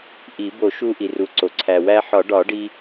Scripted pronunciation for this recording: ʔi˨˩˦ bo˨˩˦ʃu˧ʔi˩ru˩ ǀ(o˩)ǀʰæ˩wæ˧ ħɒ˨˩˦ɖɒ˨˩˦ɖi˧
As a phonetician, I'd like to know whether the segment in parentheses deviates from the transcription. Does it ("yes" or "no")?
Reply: no